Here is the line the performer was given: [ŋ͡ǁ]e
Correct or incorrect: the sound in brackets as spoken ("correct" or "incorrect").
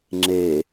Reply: correct